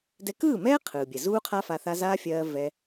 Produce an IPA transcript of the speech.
d ɛ˧ k ɯː˦˨ m ɛː˦ qʰ ɯː˨ bʲ ɛ˨ z uː˦ qʰ a˦ f a˧ θ a˦ z aː˦ fʲ ɜː˧ v ɛ˧

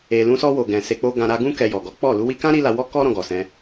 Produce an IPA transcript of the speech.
e˨ l ũ˧ s ɔ˧ w o˨ ɡ ɛ̃˨ s e˧ k͡p o˦ ɡ ã˧ ɾ a˧ ɡ ũ˦ k ɛ˧ j ɔ˨ ɡ ɔ˨˦ k͡p ɔ˦˨ l u˧ w i˧ k ã˦ ɾ i˦ l a˧ w ɔ˦ k ɔ˦ ɾ ɔ̃˧ ɡ ɔ˨ s ɛ̃˧

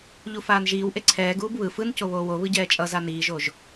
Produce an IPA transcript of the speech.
ʎ u f aː n ʒ iː w ʔ e ǀʰ ɛː ɡ uː b β ɯ f ɯ n c o β oː w o β ɯ ɟ ɛː t͡ʃʼ ʌ z a n iː ʒ o ʒ

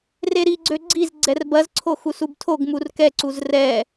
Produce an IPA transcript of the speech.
r e ɾ i ɡ͡ǀ ø ɡ͡ǀ i z ɡ͡ǀ ɛ r b ɐ z ǀʰ o x u s u b tʰ o ɡ m u r k ɛ ǀ u z r ɛ

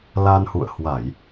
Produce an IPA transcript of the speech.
l a˧ n h ṵ˧˨ ə̯ h w a˧˩˨ j

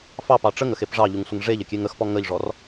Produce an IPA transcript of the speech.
f ɑ p ɑ ʈ͡ʂ ə ŋ ə x e p ʐ ɑ ʎ u ŋ sʷ ə ŋ ʐ e ʎ ə kʲ e ŋ ə x p ɔ ŋ ə ʎ ʐ ɔ r

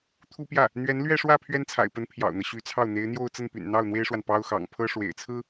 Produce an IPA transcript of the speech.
t̪ʰ u˥ p j ä˥˩ | n̪ ɥ ɛ˧˥ n l ɥ ɛ˥˧ ʂ w ä˥˩ pʰ ɥ ɛ˥ n t͡sʰ a̰˨˩ ɪ̯ p ə˧˥ n pʰ j ɑ̰˨˩ ʊ̯ n̪ ɤ˦ ɕ y˧˥ t͡sʰ ɑ˥˩ ʊ̯ n̪ e˧˥ ɪ̯ n̪ j o˥˧ ʊ̯ t͡s ə˥˩ n p y̰˨˩ n n̪ ɑ˥˩ ʊ̯ n̪ w e˥ ɪ̯ ʂ w a˨ n p ɑ˥ ʊ̯ x ɑ̰˨˩ ŋ pʰ ɤ˥ ʂ w ḛ˨˩ ɪ̯ t͡sʰ ɹ̩˥

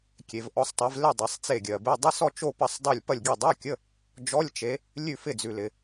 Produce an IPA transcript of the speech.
kʲ e˨ v ʔ ɔ˨˦ sˤ tˤ e˨˦ v l ɪ˦˨ dˤ ɛ˨ sˤ t͡s e˦˨ ɡʲ ɜ˨ b e˧˥˧ dˤ ɪ˧˥˧ s ɔ˦˨ t͡ʃ o˦˨ p ɐ˦˨ sˤ dˤ o˦˨ lʲ p ɐ˦˨ lʲ ɡʲ ɛ˦˨ dˤ a˧˥˧ kʲ ə˧˥˧ | d͡ʒ ɔ˧˥˧ lʲ t͡ʃ e˨˦ | lʲ ʉ˦˨ f ɪ˦˨ d͡z ʉ˨ l ɪ˨

